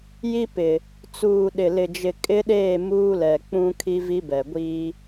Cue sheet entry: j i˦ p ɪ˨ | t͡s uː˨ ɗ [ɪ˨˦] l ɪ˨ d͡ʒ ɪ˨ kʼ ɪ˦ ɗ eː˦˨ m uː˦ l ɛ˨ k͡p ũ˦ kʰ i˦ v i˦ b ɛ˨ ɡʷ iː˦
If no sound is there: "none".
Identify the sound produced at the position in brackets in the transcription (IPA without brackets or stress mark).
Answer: ɪ˨